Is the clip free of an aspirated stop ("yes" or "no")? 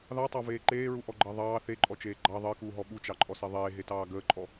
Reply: yes